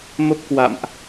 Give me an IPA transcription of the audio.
mə˦˥p̚kwa̰˧˨mʔ

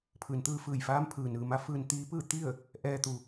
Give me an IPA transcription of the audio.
pʰɯː˩n t̪ɯː˧fɯː˧˩jfaː˧˥m pʰɯː˩nɯː˩ma˧˥ fɯː˧nt̪iː˧˥pɯː˥˨ t̪i˥˨ə̯ | ʔɛː˧t̪u˩

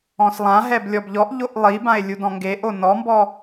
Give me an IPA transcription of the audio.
ɔ̃slˠãɦɛb lʲɔbʎɔʔʎoʔ lˠibãe̯ lʲudɔ̃ŋɡeʔo nɔmbɔ

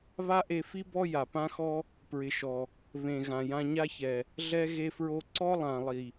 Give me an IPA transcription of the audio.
βa˦ʔe˧ fi˦ bɔ˦ ja˨pã˦xɔ˦ | pɹɪ˨ʃɔ˨ | βẽ˨ɣã˨jã˧ ɲa˦çɛ˨ | ɮɛ˦ɣe˦fɹo˦ ǀɔ˦lˠã˨ lˠi˨

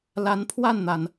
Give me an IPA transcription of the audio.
la˧˥npʰwa˥˩nn̪a˩n

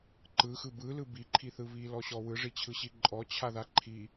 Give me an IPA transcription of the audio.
ǃɯxɯ bɯlɯ biǃʰiθɯ βilɔɕɔ wɯʐit͡ɕʰɯɕi ǃʼɔt͡ɕʰaða ǃʰi

